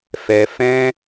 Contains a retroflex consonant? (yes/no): no